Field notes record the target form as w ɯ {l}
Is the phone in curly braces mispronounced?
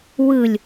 yes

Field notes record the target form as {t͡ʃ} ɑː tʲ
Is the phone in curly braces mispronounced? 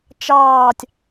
no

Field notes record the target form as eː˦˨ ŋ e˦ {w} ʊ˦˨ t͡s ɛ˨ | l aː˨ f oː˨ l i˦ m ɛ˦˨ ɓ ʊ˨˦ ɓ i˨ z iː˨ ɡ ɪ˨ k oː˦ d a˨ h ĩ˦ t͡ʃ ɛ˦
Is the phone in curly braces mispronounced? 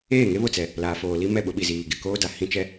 yes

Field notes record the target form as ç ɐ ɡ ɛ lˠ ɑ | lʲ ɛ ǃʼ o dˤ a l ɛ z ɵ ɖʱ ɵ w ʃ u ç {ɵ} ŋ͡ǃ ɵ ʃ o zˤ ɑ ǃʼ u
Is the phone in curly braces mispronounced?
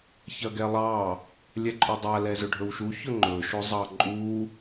no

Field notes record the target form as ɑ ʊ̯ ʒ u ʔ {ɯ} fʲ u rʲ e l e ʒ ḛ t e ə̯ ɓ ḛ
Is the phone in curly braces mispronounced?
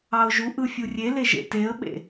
no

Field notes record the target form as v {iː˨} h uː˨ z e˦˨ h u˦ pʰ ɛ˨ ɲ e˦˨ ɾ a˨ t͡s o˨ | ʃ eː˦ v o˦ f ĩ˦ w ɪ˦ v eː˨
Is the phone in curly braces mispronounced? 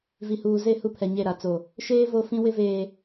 yes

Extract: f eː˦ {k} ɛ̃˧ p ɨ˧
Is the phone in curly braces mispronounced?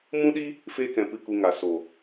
no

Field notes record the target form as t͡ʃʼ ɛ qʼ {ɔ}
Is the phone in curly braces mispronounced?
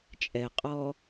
yes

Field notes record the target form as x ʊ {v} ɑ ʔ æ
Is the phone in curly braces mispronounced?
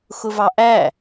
no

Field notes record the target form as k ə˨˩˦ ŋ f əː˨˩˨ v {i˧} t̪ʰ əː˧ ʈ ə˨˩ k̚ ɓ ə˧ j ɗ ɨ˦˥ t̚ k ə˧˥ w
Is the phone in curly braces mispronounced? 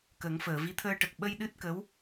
yes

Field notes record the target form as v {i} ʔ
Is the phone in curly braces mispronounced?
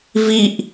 no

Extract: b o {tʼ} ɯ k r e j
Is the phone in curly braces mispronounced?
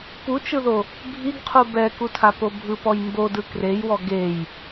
yes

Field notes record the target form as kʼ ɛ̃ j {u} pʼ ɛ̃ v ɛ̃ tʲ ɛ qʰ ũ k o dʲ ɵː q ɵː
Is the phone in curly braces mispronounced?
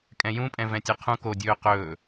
yes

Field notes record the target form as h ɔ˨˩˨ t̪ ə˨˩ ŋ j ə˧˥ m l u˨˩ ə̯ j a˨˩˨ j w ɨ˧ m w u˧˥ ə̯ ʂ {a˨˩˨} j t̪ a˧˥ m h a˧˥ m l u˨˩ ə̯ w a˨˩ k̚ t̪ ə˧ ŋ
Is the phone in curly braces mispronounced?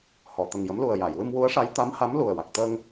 yes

